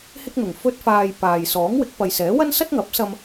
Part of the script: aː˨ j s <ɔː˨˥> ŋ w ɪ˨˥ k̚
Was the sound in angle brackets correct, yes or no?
yes